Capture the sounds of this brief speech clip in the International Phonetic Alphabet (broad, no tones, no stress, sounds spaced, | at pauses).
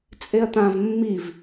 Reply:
t͡sʼ e ɐ̯ t̪ ã v mː i v